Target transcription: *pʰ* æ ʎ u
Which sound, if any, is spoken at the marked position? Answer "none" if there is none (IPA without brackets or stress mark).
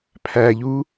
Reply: pʰ